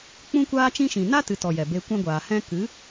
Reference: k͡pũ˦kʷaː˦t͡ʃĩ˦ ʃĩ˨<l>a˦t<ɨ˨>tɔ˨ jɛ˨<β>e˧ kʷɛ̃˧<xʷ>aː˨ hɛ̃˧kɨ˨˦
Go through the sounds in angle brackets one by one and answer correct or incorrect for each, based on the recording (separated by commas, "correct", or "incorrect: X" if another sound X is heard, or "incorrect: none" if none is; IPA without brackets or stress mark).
incorrect: n, correct, incorrect: b, incorrect: ɡʷ